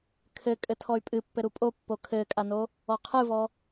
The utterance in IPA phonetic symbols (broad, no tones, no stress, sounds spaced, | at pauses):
kʰ ɘ kʼ ɘ tʰ ɔ y̯ pʼ ɨ pː ɘ ɾ u pʼ o pː o kʰ ɘː kʼ a n o | ɔ qʰ ɨ v ɔ